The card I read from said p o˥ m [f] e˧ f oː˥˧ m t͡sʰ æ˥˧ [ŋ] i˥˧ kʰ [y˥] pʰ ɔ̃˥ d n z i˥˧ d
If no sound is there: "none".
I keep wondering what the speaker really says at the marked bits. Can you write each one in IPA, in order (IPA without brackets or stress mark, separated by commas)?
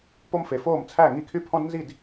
f, ŋ, y˥